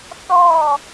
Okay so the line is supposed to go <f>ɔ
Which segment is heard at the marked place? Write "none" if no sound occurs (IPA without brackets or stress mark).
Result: θ